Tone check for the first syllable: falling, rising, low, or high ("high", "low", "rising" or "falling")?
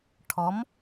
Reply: rising